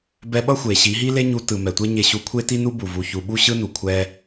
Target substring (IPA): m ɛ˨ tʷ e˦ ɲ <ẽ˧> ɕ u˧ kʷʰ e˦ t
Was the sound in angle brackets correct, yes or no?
no